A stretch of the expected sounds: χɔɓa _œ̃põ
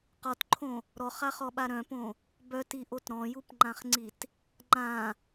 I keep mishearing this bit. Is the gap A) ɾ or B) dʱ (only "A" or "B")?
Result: A